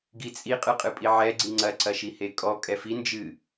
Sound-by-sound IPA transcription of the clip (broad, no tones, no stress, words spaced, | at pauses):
ɡit͡sʼi qʼɨqʼɨpʼiʕɛ ɡ͡ǀiŋ͡ǀɐ ǀɐʃihekʼɔ kʼɛfi nd͡ʒɨ